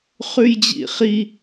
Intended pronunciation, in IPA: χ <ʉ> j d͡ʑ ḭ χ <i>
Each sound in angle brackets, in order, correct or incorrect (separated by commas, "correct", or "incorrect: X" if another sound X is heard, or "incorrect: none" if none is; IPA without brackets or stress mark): correct, correct